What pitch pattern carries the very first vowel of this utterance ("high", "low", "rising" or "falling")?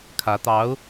rising